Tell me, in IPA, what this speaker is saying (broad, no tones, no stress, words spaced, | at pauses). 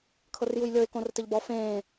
kʰɤrjujlʲɤɪ̯ kõrtɘʎbɔ fẽː